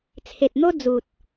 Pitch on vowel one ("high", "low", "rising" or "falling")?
low